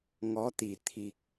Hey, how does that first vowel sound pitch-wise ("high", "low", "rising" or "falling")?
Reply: rising